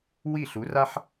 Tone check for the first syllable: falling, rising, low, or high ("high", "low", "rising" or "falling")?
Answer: falling